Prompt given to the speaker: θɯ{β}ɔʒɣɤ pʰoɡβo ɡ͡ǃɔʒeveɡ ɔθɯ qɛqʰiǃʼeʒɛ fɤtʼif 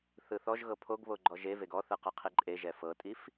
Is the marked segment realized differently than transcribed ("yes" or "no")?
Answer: yes